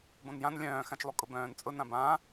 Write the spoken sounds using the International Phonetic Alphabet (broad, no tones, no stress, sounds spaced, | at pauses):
b õ n j ã n lʲ œ̃ː x ã t͡ʃ lˠ u kʼ ʊ b œ̃ː n t͡sʼ ʊ n ã b ãː